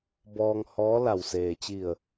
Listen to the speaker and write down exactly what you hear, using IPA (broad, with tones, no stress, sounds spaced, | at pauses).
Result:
b ɔː˧ ŋ h ɔː˧˥ l a˧˩ w s eː˩ t͡ɕ i˧˩ ə̯